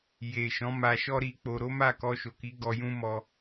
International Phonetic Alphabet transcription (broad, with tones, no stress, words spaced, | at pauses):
je˨ ʃɔ̃˨˦ma˧ʃɔ˦ ɾi˧k͡po˧ ɾo˦ma˦˨ kɔ˧ʃo˨ki˨˦ ɡɔ˧jũ˦mɔ˧